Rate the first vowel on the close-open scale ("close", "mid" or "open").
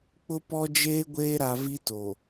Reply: close